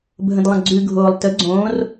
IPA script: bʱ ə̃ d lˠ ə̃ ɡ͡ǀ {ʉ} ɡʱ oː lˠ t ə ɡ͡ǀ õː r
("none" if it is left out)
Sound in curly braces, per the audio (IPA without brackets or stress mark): ʉ